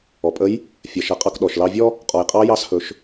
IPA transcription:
ɔ˩pʼə˧˥j | fʲɐ˩˧ʃɐ˩˧qʼɑ˧k ɗɔ˩ʃlɑ˧vʲɔ˥ | qʼɔ˩jqʼɑ˧˥ jɑ˧˥shɵ˩˧ʃ

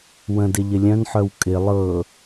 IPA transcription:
wə̃dɪ ʎɪlʲœ̃nħœw kʼɪ lˠɤ

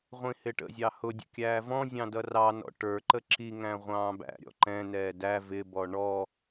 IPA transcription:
ʁʷĩhɪʈə̰zʲɑ hʊdʲə̰ kʲæːvɔ̃zʲɑ̃ dʌrɑnɔ̰ ʈə˞ǃə ǁiŋæ̃ ʁʷɑ̃ːbæ̰ɾʲɔ̰ ǃɛ̃nɛː dæ vɪbɔ ɳɔ

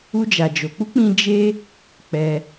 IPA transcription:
u˦d͡ʒa˧d͡ʒo˧ k͡pu˦k͡pĩ˧ d͡ʒe˦ | k͡pɛ˧

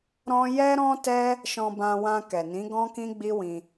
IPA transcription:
ɾɔ̃˦ jɛ˦ɾɔ̃˦tɛ˦ | ʃɔ̃˧bã˧ wã˧kɛ˨nĩ˨˦ ɡɔ̃˦kĩ˦ɡ͡bi˦wĩ˧

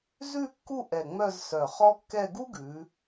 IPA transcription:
zʉ˥˧kːu˥˧ ʔɛ˧˩ŋ͡mœ˥˧z sœ˧˩χɔ˥kːɛ˥˧ ɡu˥ɡʉ˩˧

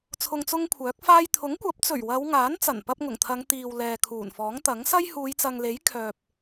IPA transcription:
t͡sʰʊ˧ŋt͡sʊ˥ŋkʷʰœː˨˥k̚faː˥j t̪ʰʊ˨˥ŋkʷɐ˨˥p̚t͡sɵ˨˩ɥ wɐ˨˧w ŋaː˨˥nt͡sɐ˨˩npɐ˧p̚ ŋʊ˨˩ŋt̪ʰɐ˨˧ŋ t̪iː˨w lɛː˨kʰuː˨˩nfɔː˨˥ŋt̪ɐ˨˥ŋ sɐ˥jhuː˨˧jt͡sɐ˨ŋle˨˥j kʰœː˨p̚

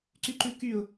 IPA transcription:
ǀyǃʉkyʊ̯

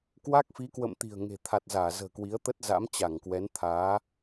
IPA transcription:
kwa˦˥k̚fi˨˦kwə̰˧˨m t̪i̤˨˩ə̯ŋe̤˨˩ t̪ʰa˨˩t̚zaː˧˩ zə̤ː˨˩kwi˨˦ə̯t̪ə˦˥t̚ za̰˧˥mt͡ɕa˧˩ŋkwɛ˨˦n t̪ʰaː˨˦

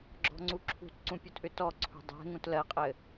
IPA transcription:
ɡ͡ǁɔ̤ŋ͡ǀuǁʰṳtǀũ pʲutʔʏtɔǀʰṳ dˤɛ̤ŋũt lɜqʼɘ

